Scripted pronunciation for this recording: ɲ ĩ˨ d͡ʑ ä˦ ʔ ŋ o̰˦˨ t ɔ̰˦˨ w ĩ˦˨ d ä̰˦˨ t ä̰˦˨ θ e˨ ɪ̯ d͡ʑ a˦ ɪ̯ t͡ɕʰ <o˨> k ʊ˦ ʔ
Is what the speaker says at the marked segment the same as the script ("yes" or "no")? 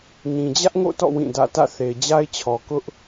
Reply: no